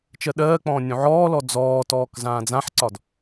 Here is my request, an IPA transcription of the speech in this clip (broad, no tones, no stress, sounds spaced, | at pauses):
t͡ʃ ɜ ɗ ɜː k͡p ɔ̃ː nʲ ũ ʕ ɔː l ɔ d͡z ɔː t ɔː k z ãː d͡z ã ħ ǀ ɒ d